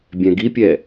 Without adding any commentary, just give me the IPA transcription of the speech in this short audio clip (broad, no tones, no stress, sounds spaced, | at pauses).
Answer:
bʲ ɛ̃ ɡ i pʲ ɛ